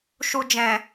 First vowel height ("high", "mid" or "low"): high